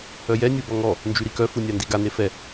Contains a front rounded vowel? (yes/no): yes